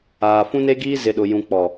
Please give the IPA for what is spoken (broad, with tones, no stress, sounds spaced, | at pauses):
aː˨ f ũ˦ n e˦ ɡ iː˦ z ɪ˨ ɗ ʊ˨ j ũ˨ k͡p ɔ˨